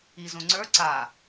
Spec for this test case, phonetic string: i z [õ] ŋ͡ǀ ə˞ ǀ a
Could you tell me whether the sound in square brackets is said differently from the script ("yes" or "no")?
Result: no